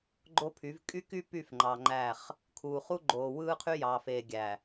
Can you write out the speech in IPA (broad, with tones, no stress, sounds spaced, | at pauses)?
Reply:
ɡ͡ǃ o˦ pʰ y˨˦ v kʼ y˦ k y˦ p y˦˨ f ŋ͡ǃ ɑ˨ ŋ͡ǃ æ˦˨ χ | kʰ uː˨ χ u˦ ɡ͡ǃ oː˨ w ɯː˦ qʰ y˦ j ɑː˨ f eː˨ ɡʲ æ˨